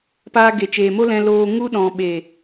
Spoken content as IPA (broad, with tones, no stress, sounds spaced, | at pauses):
p aː˧ ɡ e˨ t͡ʃ eː˨ m o˦ l ɛ̃˧ l oː˧ ŋ u˧ ɗ ɔ̃˨ ɓ e˨